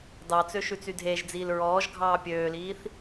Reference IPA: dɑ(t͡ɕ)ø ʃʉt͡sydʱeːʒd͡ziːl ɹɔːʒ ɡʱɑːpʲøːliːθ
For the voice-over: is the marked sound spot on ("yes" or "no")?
no